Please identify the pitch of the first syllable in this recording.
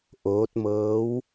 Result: rising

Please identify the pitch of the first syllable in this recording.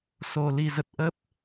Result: low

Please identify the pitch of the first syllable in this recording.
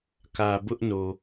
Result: low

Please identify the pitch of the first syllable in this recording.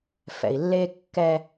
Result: low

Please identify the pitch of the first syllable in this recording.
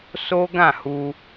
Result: high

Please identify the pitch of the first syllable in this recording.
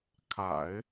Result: low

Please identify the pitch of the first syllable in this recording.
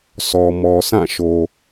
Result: low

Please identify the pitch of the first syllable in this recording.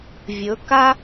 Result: rising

